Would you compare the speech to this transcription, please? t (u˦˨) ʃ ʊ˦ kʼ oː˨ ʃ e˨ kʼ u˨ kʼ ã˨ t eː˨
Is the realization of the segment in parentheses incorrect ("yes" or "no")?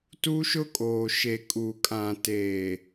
yes